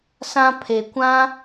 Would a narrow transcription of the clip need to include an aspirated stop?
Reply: yes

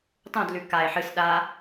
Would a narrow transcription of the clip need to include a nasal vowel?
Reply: yes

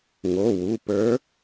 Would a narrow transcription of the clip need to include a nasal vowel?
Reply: no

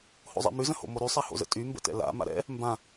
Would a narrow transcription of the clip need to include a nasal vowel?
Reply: yes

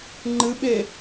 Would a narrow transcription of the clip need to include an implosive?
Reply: yes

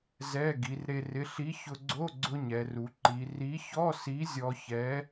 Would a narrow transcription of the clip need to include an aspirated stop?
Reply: no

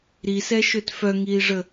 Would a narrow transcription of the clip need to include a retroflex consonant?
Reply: yes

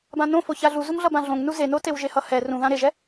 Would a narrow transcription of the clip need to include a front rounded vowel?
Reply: no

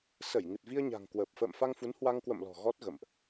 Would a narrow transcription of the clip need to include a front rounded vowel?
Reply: no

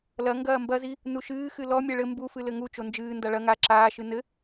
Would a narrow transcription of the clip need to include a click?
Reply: yes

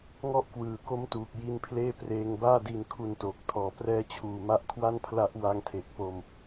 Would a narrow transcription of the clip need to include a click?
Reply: no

